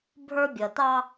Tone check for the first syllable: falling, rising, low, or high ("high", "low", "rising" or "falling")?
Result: high